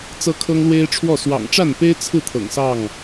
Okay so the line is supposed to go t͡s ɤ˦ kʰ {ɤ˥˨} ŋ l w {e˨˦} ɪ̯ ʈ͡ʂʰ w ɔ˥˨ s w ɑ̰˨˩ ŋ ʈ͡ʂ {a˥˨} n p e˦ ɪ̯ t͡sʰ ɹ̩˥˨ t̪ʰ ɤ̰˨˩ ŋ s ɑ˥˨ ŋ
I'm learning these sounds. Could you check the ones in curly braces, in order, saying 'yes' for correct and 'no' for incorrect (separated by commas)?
no, no, yes